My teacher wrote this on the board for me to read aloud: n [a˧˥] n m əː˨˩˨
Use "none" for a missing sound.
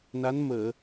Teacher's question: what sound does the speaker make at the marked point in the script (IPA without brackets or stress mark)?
a˧˥